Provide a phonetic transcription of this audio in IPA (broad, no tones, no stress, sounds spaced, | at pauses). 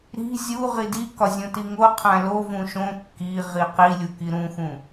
ɾ i̤ zʲ u ʁ i d i k ɒ zʲ õ t i ŋ o qʰ æ̃ l o v ũ ʃ õ kː i ʁ i q i lʲ u k i ɾ ũ x ũ